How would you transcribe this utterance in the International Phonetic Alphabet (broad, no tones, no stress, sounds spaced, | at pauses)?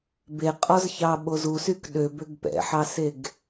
b e qʼ ɔ z ç ɑ ɓ o z u s y k ɗ ø b ø ɡ p ɛ̰ ħ ɑ s e ɡ